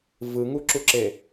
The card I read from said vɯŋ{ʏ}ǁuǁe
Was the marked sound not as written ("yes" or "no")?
yes